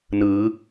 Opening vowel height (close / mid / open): close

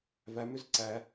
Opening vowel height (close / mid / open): open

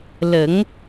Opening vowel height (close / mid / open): mid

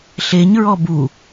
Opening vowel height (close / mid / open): mid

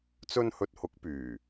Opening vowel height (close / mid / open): mid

